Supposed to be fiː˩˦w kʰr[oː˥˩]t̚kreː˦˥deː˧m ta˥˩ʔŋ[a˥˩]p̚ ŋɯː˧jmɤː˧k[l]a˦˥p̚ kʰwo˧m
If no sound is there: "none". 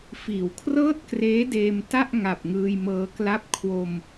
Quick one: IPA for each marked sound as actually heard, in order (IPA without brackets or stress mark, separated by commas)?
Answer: ɤː˥˩, a˨˩, l